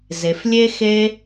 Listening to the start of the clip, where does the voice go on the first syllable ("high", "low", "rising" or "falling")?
low